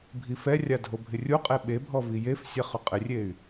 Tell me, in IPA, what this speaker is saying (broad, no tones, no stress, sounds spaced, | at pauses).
bʱ i f ɛ rʲ a dʱ o bʱ ɪ rʲ u qʼ e ɓ e bʱ ɔ v i j e f sʲ ɛ χ ʊ qʼ ɪ rʲ e y̯